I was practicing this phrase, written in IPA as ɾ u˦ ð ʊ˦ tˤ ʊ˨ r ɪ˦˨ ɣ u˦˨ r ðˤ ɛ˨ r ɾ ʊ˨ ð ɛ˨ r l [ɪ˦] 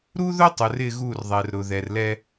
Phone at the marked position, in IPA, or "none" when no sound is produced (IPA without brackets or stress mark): ɛ˦